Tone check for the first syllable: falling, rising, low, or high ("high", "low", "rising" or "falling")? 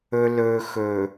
low